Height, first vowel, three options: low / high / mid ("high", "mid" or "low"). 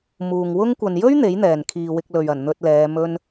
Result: high